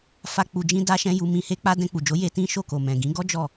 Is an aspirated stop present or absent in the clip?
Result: absent